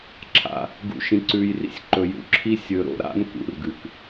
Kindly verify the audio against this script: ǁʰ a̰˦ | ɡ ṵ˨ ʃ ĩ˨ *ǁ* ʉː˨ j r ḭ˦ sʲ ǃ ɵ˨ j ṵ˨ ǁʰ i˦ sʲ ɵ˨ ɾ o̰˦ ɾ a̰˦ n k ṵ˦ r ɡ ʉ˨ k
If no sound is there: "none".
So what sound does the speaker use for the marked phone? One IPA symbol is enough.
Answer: ǀ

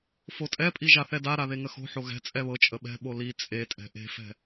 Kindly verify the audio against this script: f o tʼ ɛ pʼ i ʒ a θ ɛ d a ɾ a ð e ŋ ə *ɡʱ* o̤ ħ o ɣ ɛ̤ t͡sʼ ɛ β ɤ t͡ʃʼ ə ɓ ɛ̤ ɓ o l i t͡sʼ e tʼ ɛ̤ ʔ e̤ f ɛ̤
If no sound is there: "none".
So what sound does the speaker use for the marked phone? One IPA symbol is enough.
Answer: x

